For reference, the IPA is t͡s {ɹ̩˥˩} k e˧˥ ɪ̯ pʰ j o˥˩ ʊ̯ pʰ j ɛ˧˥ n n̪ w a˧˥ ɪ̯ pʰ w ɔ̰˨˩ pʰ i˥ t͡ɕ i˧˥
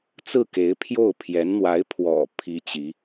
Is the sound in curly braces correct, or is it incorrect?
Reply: correct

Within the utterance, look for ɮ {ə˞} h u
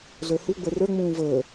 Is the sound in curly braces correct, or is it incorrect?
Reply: correct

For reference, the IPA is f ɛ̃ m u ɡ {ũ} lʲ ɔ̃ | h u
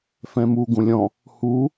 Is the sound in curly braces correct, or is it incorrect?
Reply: correct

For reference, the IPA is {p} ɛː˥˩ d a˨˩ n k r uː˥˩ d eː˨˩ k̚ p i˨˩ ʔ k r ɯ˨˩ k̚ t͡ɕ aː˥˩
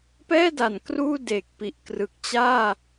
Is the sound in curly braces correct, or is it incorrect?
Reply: correct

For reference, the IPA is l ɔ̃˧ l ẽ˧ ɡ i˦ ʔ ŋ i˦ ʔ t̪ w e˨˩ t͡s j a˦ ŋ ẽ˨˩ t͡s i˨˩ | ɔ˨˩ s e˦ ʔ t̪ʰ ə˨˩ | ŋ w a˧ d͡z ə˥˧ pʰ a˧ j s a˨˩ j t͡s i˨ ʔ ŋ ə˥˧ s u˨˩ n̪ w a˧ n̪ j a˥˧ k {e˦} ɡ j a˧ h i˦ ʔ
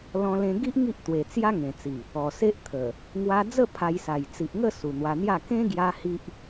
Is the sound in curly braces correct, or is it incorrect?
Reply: incorrect: ẽ˦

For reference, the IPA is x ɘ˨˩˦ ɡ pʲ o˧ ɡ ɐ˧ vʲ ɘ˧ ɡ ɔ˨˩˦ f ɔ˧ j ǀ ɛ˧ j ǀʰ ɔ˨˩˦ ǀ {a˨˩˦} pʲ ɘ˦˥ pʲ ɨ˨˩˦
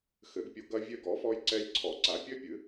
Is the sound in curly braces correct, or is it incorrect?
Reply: correct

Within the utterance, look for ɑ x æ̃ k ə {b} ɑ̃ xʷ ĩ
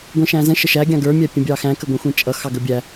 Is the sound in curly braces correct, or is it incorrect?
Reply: incorrect: ɡʷ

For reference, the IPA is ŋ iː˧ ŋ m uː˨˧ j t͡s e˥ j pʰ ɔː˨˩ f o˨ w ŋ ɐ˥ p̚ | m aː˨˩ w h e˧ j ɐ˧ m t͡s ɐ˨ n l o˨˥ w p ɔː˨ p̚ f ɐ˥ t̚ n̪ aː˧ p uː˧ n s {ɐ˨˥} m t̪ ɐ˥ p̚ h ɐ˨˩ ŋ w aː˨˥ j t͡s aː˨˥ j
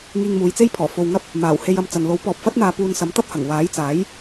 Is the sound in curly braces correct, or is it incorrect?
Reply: correct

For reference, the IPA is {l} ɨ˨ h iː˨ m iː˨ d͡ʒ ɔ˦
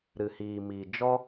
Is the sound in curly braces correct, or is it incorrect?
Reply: incorrect: ɾ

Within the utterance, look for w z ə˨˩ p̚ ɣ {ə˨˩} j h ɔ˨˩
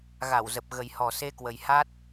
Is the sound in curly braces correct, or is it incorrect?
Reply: correct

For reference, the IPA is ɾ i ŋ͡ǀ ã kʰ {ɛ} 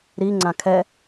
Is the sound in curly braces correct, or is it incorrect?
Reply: correct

